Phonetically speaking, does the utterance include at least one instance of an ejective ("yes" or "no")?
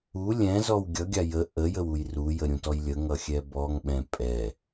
yes